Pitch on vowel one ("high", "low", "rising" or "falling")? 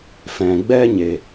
low